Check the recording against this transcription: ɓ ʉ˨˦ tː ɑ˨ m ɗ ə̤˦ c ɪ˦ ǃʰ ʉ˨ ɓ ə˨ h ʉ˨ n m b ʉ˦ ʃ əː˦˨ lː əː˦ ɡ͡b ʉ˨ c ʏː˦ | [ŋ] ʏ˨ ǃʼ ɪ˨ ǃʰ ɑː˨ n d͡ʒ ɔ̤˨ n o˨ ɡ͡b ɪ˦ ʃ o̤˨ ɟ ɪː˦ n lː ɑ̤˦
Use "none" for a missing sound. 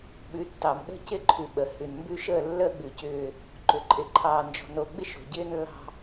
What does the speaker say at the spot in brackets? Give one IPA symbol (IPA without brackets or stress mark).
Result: ǃ